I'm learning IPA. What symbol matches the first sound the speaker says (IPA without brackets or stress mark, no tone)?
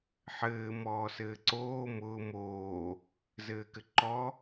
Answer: ħ